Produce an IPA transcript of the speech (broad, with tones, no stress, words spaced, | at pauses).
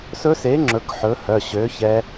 sɵ˦˥se˨˥ ŋ͡ǁɵ˨˥kħɵ˨˥hœ˩˧˩ ɕø˨˥çɛ˦˥